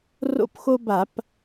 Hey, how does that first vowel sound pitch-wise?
high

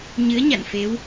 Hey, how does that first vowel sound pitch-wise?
rising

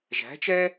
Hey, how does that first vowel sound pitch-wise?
rising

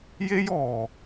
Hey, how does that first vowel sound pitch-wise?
high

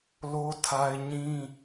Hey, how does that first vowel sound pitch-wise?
high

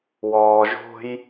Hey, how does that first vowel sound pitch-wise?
low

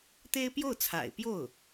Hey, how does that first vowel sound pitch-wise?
high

